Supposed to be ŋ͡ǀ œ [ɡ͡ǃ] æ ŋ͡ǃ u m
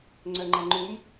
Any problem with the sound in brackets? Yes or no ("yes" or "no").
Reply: yes